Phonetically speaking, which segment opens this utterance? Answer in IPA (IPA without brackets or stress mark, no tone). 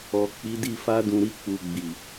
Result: ɔ